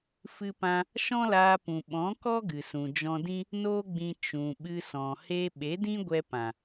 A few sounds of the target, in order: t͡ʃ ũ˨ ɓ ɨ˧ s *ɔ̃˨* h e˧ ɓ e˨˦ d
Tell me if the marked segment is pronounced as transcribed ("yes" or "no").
yes